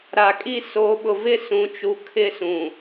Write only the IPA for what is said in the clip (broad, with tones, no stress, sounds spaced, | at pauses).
ɾ a˨ kʼ i˦ s o˨˦ ɓ ʊ˨ v ɪ˦ s ũ˨˦ t͡ʃ u˨ kʰ ɪ˦ s ũ˨